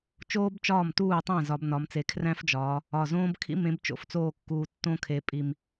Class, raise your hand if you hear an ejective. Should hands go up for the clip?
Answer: yes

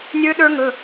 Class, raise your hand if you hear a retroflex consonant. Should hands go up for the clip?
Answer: no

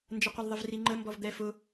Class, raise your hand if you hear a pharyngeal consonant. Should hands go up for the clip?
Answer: no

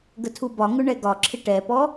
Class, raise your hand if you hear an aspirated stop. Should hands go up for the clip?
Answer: yes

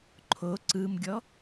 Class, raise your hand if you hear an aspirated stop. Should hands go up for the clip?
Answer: yes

